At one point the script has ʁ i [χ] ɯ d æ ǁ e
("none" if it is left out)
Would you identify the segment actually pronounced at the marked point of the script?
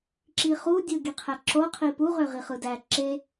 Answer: χ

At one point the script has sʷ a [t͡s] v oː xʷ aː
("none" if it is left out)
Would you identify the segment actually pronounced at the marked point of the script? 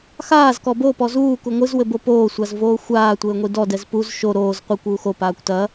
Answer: z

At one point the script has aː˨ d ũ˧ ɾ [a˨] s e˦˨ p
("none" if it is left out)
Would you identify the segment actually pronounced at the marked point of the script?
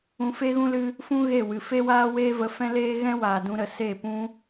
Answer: ə˨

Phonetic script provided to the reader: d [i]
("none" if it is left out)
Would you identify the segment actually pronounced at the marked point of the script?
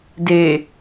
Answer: e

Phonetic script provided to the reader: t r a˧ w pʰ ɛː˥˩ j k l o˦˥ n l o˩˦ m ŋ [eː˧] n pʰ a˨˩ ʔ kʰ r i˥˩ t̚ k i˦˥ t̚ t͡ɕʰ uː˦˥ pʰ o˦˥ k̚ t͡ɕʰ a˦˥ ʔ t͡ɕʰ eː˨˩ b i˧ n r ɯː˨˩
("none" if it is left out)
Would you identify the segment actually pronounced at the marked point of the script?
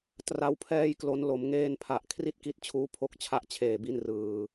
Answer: eː˧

